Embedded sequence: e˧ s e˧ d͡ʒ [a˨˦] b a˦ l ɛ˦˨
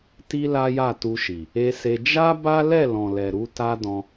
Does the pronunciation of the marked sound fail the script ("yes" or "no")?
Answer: yes